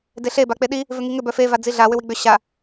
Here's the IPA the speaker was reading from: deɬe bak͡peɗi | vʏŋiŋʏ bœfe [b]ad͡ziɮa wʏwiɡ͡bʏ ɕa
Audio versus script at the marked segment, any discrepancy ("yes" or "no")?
yes